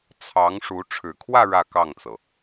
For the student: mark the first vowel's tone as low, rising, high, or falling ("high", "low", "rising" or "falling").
rising